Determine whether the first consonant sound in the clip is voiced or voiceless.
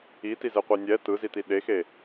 voiceless